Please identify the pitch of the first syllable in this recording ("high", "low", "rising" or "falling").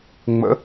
rising